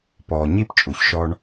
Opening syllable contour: low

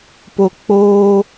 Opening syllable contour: low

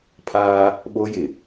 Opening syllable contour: high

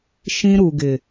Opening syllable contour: high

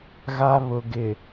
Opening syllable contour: high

